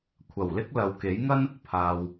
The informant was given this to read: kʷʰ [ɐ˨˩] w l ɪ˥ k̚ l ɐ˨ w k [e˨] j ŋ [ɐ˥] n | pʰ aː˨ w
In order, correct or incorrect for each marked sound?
correct, incorrect: e˨˥, correct

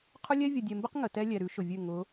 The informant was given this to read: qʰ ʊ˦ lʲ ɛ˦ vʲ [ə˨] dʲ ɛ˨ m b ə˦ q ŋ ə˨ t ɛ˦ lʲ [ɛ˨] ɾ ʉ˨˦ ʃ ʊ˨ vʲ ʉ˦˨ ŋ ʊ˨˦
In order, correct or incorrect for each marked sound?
correct, correct

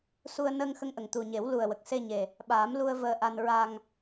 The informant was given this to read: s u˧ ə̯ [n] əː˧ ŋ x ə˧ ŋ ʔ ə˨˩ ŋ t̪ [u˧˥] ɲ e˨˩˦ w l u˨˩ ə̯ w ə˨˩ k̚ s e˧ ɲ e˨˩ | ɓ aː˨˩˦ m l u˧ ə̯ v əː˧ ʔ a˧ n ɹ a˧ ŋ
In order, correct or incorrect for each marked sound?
correct, incorrect: u˨˩

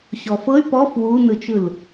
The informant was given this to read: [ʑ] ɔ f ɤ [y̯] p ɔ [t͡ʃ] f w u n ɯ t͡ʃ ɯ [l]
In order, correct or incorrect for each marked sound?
incorrect: ɕ, correct, incorrect: none, correct

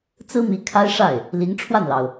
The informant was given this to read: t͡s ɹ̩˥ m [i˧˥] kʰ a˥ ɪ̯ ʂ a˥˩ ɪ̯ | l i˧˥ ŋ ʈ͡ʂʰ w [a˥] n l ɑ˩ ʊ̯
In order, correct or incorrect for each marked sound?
correct, incorrect: a˥˩

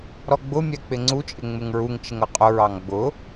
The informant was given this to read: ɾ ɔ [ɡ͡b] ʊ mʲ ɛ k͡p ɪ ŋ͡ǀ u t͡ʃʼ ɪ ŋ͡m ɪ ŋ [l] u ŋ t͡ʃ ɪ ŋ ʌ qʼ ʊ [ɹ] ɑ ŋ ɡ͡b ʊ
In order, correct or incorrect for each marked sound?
correct, incorrect: ɹ, correct

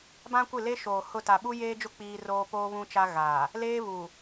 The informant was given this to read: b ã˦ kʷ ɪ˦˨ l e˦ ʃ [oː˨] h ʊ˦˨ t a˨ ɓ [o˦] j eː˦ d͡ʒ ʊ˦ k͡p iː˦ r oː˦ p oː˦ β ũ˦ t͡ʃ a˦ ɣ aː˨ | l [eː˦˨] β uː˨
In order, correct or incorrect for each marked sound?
correct, incorrect: u˦, incorrect: eː˦

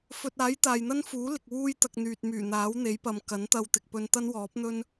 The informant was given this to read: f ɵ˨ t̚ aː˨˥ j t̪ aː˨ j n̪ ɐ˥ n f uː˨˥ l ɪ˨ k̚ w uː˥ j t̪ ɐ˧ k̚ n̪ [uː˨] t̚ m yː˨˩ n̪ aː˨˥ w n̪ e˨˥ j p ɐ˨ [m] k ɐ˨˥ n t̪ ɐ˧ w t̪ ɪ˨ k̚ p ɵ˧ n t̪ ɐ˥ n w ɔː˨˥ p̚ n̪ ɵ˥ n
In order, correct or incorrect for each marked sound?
incorrect: yː˨, correct

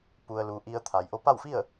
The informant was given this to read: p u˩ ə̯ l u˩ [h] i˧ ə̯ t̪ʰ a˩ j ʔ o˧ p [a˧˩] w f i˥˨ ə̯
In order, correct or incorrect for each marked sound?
incorrect: ʔ, incorrect: a˥˨

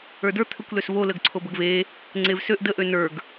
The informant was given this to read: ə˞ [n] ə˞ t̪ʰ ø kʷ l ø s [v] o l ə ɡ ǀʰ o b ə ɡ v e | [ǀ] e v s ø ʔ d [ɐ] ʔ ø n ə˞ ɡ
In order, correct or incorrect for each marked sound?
incorrect: d, correct, incorrect: ŋ͡ǀ, incorrect: ə

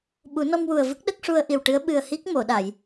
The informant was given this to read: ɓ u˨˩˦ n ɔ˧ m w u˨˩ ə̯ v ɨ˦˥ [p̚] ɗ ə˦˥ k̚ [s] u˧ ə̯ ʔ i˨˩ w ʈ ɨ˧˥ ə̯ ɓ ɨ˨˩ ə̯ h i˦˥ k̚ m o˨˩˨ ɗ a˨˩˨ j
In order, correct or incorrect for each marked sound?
incorrect: k̚, incorrect: ʂ

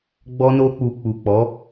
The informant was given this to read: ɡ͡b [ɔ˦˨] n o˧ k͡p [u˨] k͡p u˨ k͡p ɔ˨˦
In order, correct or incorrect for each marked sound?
incorrect: ɔ˧, correct

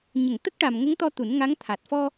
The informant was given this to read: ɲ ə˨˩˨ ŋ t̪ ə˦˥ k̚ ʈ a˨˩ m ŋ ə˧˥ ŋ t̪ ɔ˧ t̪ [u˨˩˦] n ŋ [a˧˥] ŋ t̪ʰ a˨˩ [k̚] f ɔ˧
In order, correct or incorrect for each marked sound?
correct, correct, incorrect: t̚

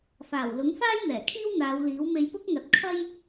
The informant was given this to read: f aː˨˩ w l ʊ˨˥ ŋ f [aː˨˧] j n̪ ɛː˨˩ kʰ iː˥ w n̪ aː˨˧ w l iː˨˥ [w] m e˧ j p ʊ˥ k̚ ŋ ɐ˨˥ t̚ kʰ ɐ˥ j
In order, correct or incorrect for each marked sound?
incorrect: aː˥, correct

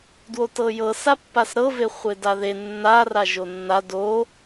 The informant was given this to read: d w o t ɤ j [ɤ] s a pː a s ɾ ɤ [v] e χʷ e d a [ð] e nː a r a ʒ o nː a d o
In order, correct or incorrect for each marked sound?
correct, correct, correct

